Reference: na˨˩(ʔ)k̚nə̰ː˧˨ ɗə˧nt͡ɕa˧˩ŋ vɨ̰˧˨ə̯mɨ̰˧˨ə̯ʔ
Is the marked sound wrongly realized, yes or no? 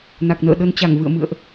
yes